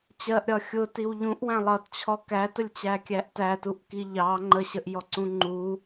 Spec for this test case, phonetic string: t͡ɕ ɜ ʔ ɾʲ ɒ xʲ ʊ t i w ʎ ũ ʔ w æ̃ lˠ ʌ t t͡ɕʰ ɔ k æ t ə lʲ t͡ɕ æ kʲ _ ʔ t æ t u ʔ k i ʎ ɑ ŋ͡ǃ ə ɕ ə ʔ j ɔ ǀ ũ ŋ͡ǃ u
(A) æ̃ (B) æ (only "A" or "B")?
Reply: B